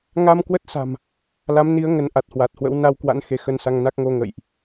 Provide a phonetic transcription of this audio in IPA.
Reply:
ŋ a˧ m k w ə˦˥ t̚ s a̤˨˩ m | l a˨˦ m n i˨˦ ə̯ ŋ ə˨˦ n ʔ a˨˩ t̚ h w a˨˩ t̚ h w ə̰˧˥ w n a˧ w k w a̰˧˥ n x e˨˦ x ə˧ n s a˧ ŋ n a˦˥ k̚ ŋ o˧ ŋ ə̰˧˨ j ʔ

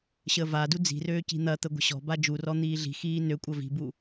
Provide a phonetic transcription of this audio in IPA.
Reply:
ɕ əː v a d u d͡z i̤ r øː c i̤ n̪ ɐ t̪ ə ɡʷ ə̤ ɕ ɔ̤ b a d͡ʒ u r ɔ n̪ iː ɮ i̤ x iː n ø kʷʼ ɐ v i̤ b u

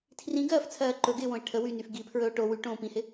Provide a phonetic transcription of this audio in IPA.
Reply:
tʰ r ĩ ɡ ɜː f t͡sʰ ɜː ǃ ɵ ɡ ɪː w õ e̯ ʈʰ ə w y n y f ɡ i pʰ ɹ ɵ o̯ ʈ o w y ʈ õː p ĩ h ɪ

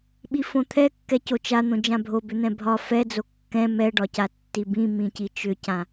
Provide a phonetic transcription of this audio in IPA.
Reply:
ɓ i f õ t̪ʰ ɛ kː ɛ c o t͡ʃ a n̪ õ d͡ʒ ã bʱ o b ʏ n̪ ɛ̃ bʱ ɒ f ɛ d͡z o kː ɛ̃ m ɛ ɖ ɒ c a tː i b ĩ m ĩ c i t͡ʃ ʏ c ã

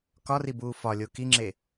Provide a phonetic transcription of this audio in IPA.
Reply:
k ɒ r i b uː f ɒ lʲ o k i ŋ͡ǁ e

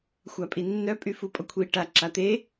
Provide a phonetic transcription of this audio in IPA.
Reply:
xʷ a pʼ i nː œ pʼ y f u pʼ ɔ kʷʰ i ʈ a ǁ a t̪ e

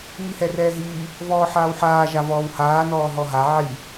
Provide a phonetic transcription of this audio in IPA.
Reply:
ŋ i h ɛ r ɛː ɦ iː | v ɔː ħ aː w ħ aː ʒ a v ɔː w h aː n ɔː ɦ ɔ ɦ a ʕ i

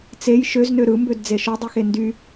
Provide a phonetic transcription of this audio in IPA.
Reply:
t͡s e j ʃ ø z n ø ɾ ɯ m b ø d d͡z e ʃ o dˤ i x e n d y

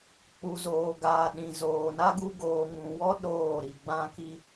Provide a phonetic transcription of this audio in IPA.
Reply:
k͡p u˨ z oː˨ ɡ aː˨ ɗ ĩ˨ z oː˨ n a˦ ɡ u˦ ɡ oː˨ ŋ ũ˨ w ɔ˦ ɗ oː˦˨ ɾ i˨ ɡ͡b ã˦ k i˦

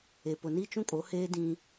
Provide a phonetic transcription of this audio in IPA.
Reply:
e˨ p ʊ˨ n i˦ t͡ʃ ũ˦ kʼ o˨˦ h eː˦ d ĩ˦

